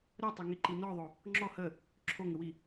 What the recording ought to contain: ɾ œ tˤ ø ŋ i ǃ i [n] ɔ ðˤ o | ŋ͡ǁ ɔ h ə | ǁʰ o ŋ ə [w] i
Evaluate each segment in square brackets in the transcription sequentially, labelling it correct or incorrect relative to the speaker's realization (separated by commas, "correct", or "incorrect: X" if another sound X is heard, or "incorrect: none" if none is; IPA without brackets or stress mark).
correct, correct